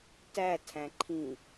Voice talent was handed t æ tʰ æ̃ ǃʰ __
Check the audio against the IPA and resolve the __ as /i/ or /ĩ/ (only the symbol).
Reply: ĩ